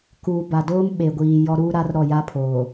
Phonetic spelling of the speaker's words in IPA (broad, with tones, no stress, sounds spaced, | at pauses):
k uː˨ b a˨ d oː˦ m ɓ e˨ ɡʷ iː˨ j ɔ˦ ɾ uː˦ ɾ a˦ r ɾ ɔ˦˨ j a˦ pʰ oː˨